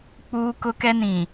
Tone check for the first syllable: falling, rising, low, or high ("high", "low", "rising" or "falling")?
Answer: high